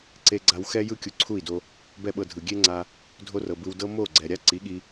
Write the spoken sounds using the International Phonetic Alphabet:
ǀ e˦ ɡ͡ǀ a˦ w x ɛ˦ j ɯ˦ kʲ u˧ ǀʰ u˦˨ i̯ d o˧ | b ɛ˦ ɓ ɤ˧ dʱ ɯ˨ ɡʲ e˦ ŋ͡ǀ a˧ | dʱ o˦ r ɤ˨ b ɯ˧ w d ɤ˦ m o˦˨ ɡ͡ǀ ɛ˨ ɾʲ a˦ ǀ i˨˦ ɠ i˧

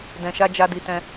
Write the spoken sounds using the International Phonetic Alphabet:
d ɛ̃˨ ʃ a˧ d͡ʒ a˧ d i˨ t ɛ̃˧

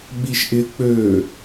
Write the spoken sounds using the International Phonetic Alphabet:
ɓ i ʃ ʔ ɪ k͡p ø

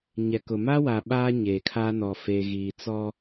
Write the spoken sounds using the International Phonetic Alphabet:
ɲ ɛ˨ k ʊ˨ m a˦ w a˨ ɓ aː˦ ɲ eː˨ kʰ aː˦ n ɔ˨ f e˨ ɣ iː˨ t͡s ɔ˦

